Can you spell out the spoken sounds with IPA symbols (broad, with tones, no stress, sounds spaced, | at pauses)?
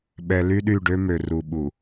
ɓ ɛ˨ l y˦ ɗ y˦˨ ɖ ø˦ m ø˨ r u˨ ɓ u˨